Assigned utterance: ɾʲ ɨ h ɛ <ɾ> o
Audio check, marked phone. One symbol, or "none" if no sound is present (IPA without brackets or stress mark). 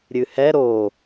ɾ